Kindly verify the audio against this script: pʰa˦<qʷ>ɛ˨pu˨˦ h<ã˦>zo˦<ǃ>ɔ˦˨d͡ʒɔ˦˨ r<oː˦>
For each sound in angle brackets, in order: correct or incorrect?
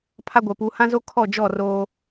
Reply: incorrect, correct, incorrect, correct

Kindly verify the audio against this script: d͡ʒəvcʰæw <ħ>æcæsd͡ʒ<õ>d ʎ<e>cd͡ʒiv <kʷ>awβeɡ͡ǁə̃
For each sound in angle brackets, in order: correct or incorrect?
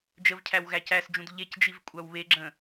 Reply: incorrect, incorrect, correct, incorrect

